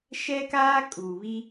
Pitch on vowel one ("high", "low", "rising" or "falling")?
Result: high